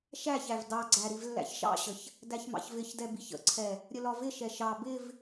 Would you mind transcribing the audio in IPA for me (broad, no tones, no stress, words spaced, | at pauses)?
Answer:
ʃæçæv dɑɡ͡ǀæ ɾivlːæ̰çʃɑ̰ɕəç | dæçmɑ̰çvɪçdɛ biçə̰ǀʰɛ | ɾʲəlɒvɪʃɛ ʃɑ bɪv